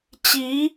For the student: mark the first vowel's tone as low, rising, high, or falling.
rising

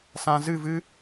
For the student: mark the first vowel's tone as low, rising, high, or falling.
low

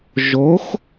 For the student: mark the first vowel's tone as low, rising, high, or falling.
rising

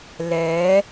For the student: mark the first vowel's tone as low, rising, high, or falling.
rising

